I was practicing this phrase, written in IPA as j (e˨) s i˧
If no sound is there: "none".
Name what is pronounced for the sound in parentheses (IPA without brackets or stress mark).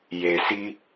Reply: e˨